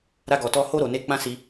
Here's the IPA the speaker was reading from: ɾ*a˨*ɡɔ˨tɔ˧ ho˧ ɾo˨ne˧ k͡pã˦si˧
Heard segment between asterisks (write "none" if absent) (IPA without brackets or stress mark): a˧